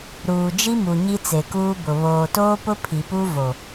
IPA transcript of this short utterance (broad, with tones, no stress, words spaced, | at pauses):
ɾuː˨d͡ʒi˦mu˨ ɲi˦t͡se˨kuː˦bʊ˨ βoː˨toː˦pʊ˦ pʰi˨pu˦ vo˨